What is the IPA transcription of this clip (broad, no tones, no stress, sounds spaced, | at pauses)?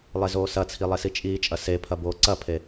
lˠ e z oː s ɐ t͡sʰ i lˠ e s i t͡ʃʼ iː t͡ʃʼ ɐ s e pʰ ɐ b oː ǀ ɐ pʰ e